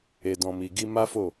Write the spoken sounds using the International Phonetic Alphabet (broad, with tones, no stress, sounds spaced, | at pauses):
e˨ d ɔ̃˨ m i˨ ɡ i˧ m a˦ f o˦˨